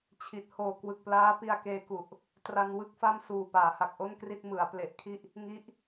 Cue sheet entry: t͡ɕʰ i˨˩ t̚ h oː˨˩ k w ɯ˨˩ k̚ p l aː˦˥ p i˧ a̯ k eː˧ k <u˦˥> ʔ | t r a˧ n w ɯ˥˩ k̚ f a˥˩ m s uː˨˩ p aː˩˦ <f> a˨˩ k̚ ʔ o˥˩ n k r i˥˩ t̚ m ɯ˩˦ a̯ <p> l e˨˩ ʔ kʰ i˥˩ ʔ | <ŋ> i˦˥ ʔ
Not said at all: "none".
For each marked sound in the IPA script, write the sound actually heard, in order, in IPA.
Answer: u˨˩, h, p, ŋ

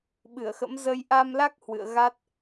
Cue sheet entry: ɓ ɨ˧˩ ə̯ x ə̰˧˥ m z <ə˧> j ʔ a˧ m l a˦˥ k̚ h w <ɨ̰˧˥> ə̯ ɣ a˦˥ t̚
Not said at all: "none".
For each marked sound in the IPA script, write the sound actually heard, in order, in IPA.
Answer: ə˧, ɨ̰˧˨

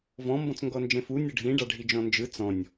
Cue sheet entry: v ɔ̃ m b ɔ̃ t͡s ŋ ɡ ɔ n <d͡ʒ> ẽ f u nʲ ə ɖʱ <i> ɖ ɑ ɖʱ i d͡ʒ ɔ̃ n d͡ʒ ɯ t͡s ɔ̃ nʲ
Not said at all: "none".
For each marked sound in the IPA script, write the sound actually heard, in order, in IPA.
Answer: d͡ʒ, ĩ

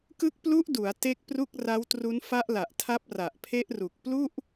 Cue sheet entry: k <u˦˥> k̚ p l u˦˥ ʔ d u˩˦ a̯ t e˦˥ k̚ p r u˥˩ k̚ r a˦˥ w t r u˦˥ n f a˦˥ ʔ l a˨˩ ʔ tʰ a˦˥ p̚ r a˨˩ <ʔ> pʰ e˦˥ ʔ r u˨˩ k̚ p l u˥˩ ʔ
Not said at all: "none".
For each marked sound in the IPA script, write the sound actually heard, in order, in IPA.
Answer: ɯ˦˥, ʔ

